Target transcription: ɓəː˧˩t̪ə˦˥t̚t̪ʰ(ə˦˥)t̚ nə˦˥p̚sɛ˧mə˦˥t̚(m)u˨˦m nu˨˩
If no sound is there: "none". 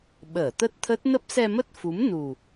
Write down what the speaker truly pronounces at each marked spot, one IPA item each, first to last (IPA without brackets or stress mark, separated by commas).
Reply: ə˦˥, f